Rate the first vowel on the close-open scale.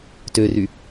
mid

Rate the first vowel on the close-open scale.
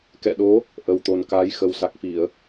mid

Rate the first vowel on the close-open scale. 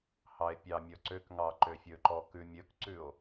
open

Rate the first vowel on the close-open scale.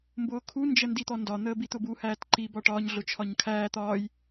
close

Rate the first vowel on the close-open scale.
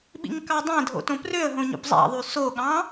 close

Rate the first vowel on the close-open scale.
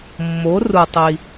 mid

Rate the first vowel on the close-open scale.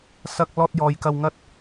open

